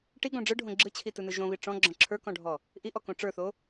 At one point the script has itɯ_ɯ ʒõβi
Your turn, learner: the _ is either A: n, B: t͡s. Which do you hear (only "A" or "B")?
A